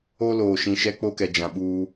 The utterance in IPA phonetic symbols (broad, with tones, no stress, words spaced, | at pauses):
o˦loː˨ʃĩ˨ʃɛ˦ k͡po˦kɛ˨ d͡ʒã˨ɓuː˦